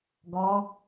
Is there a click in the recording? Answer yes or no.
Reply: no